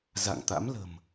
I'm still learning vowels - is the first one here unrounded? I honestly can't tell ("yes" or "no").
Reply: yes